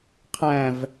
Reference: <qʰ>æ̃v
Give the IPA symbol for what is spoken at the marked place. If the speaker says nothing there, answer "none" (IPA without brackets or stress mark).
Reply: qʰ